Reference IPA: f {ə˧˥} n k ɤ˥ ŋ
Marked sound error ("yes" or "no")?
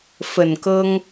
yes